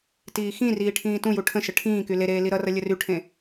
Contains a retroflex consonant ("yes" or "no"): yes